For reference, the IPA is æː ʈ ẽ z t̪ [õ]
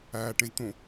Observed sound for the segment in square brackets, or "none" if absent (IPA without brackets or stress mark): õ